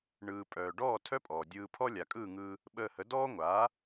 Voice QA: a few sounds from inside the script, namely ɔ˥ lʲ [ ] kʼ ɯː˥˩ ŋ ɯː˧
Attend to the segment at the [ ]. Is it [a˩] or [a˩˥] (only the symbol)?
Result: a˩